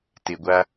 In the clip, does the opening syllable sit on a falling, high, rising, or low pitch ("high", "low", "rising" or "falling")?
low